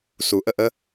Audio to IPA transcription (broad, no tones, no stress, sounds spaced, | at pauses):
s u ʔ ə ʔ ə